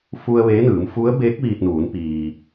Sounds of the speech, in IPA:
f u˧ ə̯ ʋ eː˧˥ n ɯː˩˧ m f u˧˥ ə̯ b eː˧˥ k̚ ʋ iː˧ t̚ n uː˩˧ n p iː˩

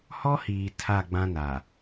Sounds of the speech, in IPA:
h ɔ˦ h iː˨ tʰ a˦˨ ɡ͡b ã˦ n a˨

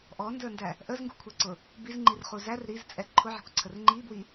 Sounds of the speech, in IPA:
ʔ ɔ n d ə˞ n d æ | ʔ ə z ŋ ɡ ṳ kʷʰ ɛ ǀ ʊ | b i z ŋ͡ǃ i r χ u z æ r ɾ i z t͡sʼ ɛ ǃʰ ʊ ʕ ɛ̤ kʷ ǀʰ ə r ŋ͡ǃ i b w i

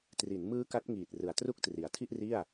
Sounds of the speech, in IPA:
t r i˩˦ n m ɯː˦˥ k a˦˥ t̚ ŋ iː˨˩ t̚ r ɯ˨˩ a̯ t r u˥˩ k̚ t r i˩˦ a̯ tʰ i˥˩ ʔ r i˥˩ a̯

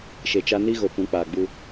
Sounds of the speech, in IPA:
ʃ e˨ t͡ʃ a˦ n i˦ ɣ o˨ p ũ˨˦ k͡p aː˨ ɡ͡b u˦

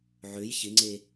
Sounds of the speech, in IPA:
ʕ ø j ç ɪ ŋ͡ǀ e

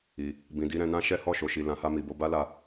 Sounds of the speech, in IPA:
i˨ | b ĩ˨ d i˧ ɾ ɛ̃˧ n ã˦ ʃ ɛ˦ h ɔ˦˨ ʃ o˨ ʃ i˨ l ã˨˦ h a˧ m i˨ b o˧ b a˦ l a˧

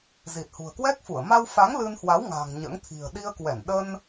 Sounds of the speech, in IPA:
z i˨˩ t̚ h ṳ˨˩ ə̯ k w ɛ˦˥ k̚ f u˧˩ ə̯ m a˧ w f a˨˦ ŋ l ɨ˧ n h w a˨˦ w ŋ a̤˨˩ ŋ ɲ ə̰ː˧˥ ŋ t̪ʰ i̤˨˩ ə̯ ɗ i˧ ə̯ k w ɛ˧˩ n ɗ ə˧ n

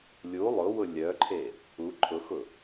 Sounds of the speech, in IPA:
lʲ u lˠ ʊ w ʊ lʲ œ ǃʰ e | u ǃʰ ʊ x ʊ

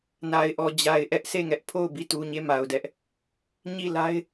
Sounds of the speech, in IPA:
n a˨ ɪ̯ ʔ ɔ˨ d͡ʑ a˨ ɪ̯ ʔ ɛ˦ ʔ s e˦˨ ŋ ɛ˦ ʔ pʰ o˦˨ ʊ̯ b i˦˨ t u˨ ɲ e˦˨ m a˨ ʊ̯ d ɛ˦ ʔ | ɲ i˦˨ l a˦ ɪ̯

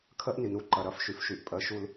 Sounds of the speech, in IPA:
kʰ ɜ˦ ʔ n i˨ n u˦ ǃ ɐ˨ ɾ ɐ˦˨ f ʃ y˨ f ʃ y˨ ʔ pʼ ɜ˨ ʃ u˨ l

